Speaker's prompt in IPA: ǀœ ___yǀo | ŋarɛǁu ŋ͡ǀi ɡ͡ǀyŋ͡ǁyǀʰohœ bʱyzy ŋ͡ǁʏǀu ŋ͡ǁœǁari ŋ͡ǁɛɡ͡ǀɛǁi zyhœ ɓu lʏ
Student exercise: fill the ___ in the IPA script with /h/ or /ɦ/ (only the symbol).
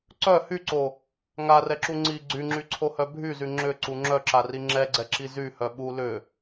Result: h